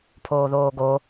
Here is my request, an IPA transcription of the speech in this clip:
pʰoːðoːɡo

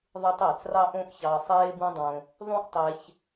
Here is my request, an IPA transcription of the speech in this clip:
ðˤɯ˧tˤ æ˨t͡srɑ˦ ʔõ˦ʔçɑ˧ sˤeː˦bũ˦dˤõ˧ | ðˤũ˦ʔtˤe˧ç

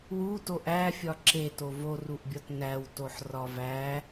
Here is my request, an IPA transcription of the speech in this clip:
wu toʔæfʲɒ ǁeto voruʔbʲɒt næwtoħ rɒvæ

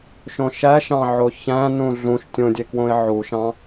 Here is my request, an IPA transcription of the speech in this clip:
ʃõʃæʃɑ̃ʕo çæ̃ nũɮũʃ tʲõdʲekwõɪ̯ ʕuʃɑ̃

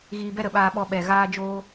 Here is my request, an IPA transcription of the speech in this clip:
ɣiː˧bɛ˦ɾə˨ɓaː˧ ɓɔ˧ɓɛ˨ ɣaː˦d͡ʒoː˦

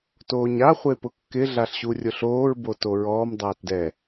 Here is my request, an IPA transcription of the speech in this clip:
toːɲa χʷepʊkːɪ ɮaɬɕurʲʊɬoːɹ botoɹɔːm dˤaːtdɛ

